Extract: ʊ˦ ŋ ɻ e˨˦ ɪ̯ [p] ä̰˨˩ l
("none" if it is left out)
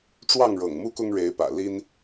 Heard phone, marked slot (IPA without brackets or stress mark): p